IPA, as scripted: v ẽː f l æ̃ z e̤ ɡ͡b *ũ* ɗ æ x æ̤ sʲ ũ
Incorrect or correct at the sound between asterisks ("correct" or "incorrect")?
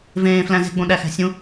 incorrect